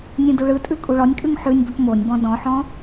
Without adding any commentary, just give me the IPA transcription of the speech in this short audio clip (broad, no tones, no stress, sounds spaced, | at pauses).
nʲ ũ d u ɭ ɯ tʼ ʉ kʼ u ɭ ɔ nʲ kʼ ʉ ŋ ħ ʉ nʲ b ɵ p m o nʲ b ɔ̃ d ɔ̃ ħ ɔ̃